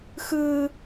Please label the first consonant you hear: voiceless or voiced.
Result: voiceless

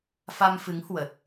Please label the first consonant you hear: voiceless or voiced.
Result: voiceless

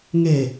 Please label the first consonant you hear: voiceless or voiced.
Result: voiced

